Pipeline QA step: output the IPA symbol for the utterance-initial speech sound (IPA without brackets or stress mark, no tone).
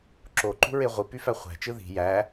ǁ